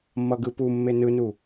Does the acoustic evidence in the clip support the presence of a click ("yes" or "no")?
no